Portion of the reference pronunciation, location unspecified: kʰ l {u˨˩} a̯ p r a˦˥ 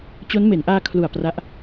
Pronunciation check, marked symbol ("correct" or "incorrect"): correct